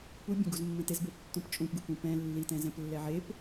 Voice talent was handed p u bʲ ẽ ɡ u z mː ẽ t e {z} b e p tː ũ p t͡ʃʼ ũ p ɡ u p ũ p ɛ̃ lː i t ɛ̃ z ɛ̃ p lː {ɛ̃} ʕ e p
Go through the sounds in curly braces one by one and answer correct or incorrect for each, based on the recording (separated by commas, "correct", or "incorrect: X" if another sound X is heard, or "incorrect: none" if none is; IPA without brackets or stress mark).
correct, incorrect: ɛ